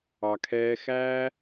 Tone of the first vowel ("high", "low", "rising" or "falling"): low